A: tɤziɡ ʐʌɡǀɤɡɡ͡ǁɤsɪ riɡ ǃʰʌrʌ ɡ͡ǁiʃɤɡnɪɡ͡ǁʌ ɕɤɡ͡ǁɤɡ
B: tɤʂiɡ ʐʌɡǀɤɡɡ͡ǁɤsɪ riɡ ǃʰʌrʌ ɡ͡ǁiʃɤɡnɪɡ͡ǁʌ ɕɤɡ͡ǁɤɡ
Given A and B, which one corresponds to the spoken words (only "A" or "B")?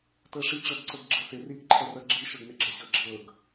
B